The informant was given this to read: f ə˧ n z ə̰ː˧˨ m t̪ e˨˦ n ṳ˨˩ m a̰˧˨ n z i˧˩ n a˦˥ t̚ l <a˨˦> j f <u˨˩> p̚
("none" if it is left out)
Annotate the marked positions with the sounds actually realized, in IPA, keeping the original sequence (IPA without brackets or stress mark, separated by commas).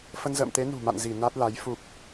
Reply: a˨˦, u˨˩